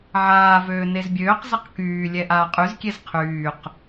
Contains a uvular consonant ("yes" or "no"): yes